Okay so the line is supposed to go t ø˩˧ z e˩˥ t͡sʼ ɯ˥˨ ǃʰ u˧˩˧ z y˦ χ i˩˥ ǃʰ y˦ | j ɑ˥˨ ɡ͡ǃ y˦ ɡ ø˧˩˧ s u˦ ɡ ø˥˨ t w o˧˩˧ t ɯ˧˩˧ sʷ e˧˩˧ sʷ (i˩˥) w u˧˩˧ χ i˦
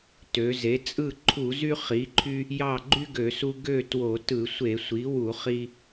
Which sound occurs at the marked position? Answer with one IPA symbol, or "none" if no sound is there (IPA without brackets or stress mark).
i˩˥